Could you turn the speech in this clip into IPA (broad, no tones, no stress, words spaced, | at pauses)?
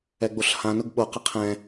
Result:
ɛɡ͡boɬhã nʊɡɓo qəqʰɛ̃